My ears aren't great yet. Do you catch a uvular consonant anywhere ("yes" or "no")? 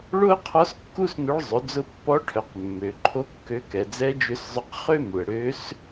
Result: yes